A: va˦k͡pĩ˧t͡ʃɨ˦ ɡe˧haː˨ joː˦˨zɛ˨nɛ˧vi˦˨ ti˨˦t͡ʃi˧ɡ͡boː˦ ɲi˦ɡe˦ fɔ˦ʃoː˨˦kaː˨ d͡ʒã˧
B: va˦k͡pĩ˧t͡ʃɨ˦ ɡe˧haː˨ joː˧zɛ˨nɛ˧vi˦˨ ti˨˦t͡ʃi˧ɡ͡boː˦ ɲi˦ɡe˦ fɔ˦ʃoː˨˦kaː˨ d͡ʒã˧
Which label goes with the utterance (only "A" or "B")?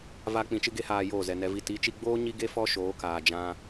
A